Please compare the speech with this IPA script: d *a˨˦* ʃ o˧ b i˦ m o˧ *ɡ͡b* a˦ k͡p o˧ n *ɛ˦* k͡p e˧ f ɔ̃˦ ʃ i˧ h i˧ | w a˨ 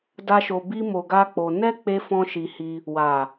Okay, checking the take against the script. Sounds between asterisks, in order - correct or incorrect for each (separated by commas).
incorrect, incorrect, correct